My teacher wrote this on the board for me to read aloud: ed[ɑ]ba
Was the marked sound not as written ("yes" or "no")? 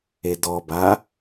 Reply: yes